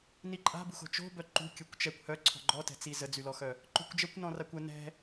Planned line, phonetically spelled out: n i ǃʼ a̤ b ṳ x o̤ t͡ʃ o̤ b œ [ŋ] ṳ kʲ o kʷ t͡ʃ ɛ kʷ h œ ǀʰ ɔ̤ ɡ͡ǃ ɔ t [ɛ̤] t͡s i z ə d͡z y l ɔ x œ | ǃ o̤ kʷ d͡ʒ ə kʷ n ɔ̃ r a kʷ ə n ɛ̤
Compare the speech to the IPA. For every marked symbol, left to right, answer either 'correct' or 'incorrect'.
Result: incorrect: ǃ, correct

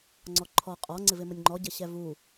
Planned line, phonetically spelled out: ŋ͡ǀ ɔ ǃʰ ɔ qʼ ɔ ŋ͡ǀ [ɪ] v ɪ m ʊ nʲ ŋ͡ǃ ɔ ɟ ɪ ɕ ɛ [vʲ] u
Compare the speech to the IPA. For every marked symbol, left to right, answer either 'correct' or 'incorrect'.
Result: correct, incorrect: v

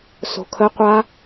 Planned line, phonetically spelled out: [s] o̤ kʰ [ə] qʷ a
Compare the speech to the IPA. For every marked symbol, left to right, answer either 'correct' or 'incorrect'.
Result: correct, correct

